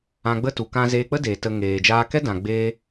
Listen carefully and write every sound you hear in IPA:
ã˧ɡ͡bə˦tu˨ kã˧zeː˧k͡pə˦deː˨ tə˧ ŋeː˨d͡ʒaː˧kɛ˦ dã˧ɡ͡beː˦

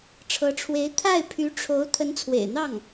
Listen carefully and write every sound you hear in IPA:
ʈ͡ʂʰɤ˧˥ʈ͡ʂʰwe˧˥ɪ̯ t̪ʰa˥˩ɪ̯ pʰy˧˥ʈ͡ʂʰo˧˥ʊ̯ t̪ʰə˧˥nt͡sʰwḛ˨˩ɪ̯n̪ɑ˥˩ŋ

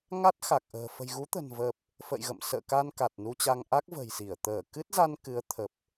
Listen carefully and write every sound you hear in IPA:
ŋa˦˥t̚xa˨˩k̚ʔə̤ː˨˩ fə̤˨˩jɣu˨˦t̪ə̤˨˩nvəː˨˩p̚ | fə̰ː˧˨jɣə̰˧˨msə̰ː˧˨ ka˧nka˨˩t̚nu˧t͡ɕa˧ŋ ʔa˦˥k̚və̤˨˩jsi˧˩ə̯ t̪əː˧˩kɨ˦˥t̚za˧n kɨ˨˦ə̯t̪ʰə˨˩p̚

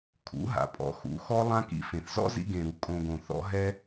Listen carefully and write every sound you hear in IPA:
kʰṵ˨˦ ɦa̰˨pʼɔ̰˨˦ xṵ˨˦xɔ˦ lˠã˦kḭ˧fẽ˨θ zɔ̰˦zḭ˧ɡẽ˨ɾu˨ kʼõ˧ɡõ˨ θɔ̰˦ɦɛ˦

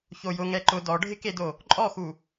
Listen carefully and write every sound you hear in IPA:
çojʊ ŋɛǃʊ dɔɖʱɪkedo | ǃʼɔxu

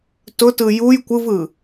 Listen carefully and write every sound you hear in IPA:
tʊtɯ juj kʷɯvɯ

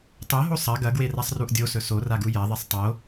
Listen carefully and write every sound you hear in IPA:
tˤoɦo sˤɐ ɡɐɡwerasˤruʔ dʲosɵ soraɡu jɐðˤisˤ tˤo

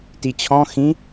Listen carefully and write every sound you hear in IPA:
tit͡ɕʰɔ̃ xĩ

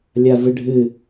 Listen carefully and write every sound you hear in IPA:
lʲavɨɖʱɨ

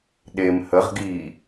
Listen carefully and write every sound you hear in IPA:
ɗem həʁ ɡi

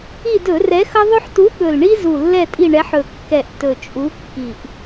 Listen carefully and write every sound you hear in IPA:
i˦˨dɵ˧˩˧rɛ˨˥xʌ˦ ðˤɵ˦ħtu˨˥ ɠɵ˨˩lɳi˦zu˨˩ lːɛ˦˨tʼi˦˨ɳɛ˨˥ħ ɵ˨˩kːɛ˨˩ʔ tɵ˨˩t͡ʃʼu˨˥kːi˨˩ʔ

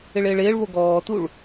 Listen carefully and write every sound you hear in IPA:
ɪɭɪːɭɪːɭβo ɡɔːtuɭ

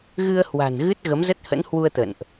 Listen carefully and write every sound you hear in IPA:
ɣɨ˧ə̯hwa̤˨˩n ɣɨ˦˥t̚ ɣə˨˦mzə˦˥t̚hə̰˧˥nhwu˧ə̯ t̪ə̰˧˨nʔ

